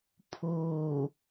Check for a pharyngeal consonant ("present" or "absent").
absent